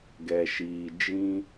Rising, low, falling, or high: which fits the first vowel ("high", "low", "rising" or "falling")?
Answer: low